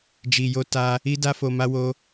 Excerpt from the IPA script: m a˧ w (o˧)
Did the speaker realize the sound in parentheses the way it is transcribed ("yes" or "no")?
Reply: yes